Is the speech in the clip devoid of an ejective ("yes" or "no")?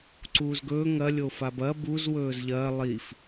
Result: yes